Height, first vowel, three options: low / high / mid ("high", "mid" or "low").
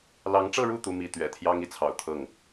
low